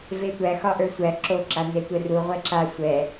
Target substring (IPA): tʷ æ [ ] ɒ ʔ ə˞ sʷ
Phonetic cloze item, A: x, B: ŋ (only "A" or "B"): A